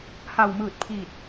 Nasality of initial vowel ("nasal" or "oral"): oral